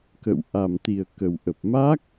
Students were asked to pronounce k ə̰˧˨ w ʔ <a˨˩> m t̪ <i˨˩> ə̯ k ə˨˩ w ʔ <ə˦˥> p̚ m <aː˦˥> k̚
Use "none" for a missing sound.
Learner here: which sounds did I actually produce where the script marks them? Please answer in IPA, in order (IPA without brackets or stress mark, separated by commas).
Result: a˨˩, i˨˩, ə˨˩, aː˦˥